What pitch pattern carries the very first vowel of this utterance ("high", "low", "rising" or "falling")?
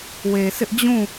low